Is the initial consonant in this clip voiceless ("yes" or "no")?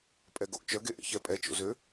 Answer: yes